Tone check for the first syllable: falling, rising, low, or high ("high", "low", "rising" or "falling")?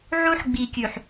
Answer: high